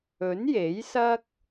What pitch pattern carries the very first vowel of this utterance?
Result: rising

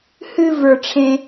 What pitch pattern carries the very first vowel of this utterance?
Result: high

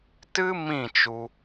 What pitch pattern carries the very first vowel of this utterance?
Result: high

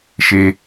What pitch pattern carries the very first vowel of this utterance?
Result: high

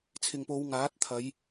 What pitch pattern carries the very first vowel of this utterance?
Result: low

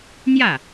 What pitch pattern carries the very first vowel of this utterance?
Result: falling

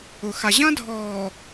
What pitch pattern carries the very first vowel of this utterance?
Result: low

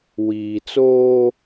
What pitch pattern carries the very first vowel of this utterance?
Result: low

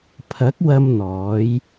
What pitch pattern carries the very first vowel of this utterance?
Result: rising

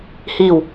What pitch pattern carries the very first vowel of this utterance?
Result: falling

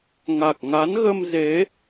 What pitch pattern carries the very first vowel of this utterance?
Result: low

